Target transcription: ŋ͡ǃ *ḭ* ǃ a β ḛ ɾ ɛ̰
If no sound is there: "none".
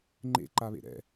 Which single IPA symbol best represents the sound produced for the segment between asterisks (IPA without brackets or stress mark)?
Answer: ḛ